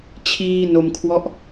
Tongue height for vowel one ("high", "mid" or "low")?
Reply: high